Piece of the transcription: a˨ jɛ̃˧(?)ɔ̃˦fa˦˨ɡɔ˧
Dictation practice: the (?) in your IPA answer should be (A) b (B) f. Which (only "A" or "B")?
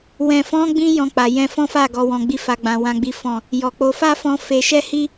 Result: B